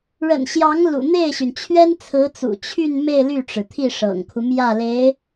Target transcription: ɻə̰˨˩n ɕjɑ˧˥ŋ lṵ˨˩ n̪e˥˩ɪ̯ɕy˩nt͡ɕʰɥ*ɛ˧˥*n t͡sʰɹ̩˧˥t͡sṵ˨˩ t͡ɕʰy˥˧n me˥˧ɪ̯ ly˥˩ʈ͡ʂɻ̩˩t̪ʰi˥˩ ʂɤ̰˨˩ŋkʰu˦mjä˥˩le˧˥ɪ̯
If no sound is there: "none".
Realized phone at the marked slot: ɛ˥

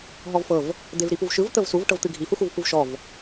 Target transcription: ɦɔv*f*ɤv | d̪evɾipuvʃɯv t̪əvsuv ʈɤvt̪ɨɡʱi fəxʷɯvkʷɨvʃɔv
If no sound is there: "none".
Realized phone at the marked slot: f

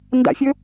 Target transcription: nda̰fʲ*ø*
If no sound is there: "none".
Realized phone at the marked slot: ɵ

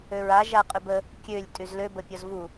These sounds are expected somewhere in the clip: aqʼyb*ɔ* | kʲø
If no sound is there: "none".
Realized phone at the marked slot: ə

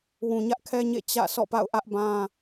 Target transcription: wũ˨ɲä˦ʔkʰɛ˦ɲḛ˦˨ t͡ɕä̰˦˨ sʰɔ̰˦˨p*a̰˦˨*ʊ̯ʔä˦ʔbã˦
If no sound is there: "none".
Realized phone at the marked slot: a̰˦˨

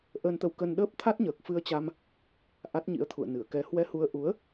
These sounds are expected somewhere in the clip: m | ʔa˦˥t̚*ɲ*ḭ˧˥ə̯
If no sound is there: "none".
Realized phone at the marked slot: ɲ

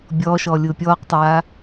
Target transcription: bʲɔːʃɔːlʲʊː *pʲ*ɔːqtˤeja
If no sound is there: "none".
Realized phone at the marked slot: pʲ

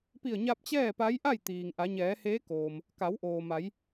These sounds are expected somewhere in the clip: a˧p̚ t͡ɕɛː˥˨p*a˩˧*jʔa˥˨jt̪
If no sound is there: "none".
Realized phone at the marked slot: a˧˥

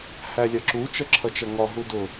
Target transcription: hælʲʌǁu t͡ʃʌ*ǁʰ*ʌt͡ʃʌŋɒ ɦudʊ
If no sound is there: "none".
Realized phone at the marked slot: ǁʰ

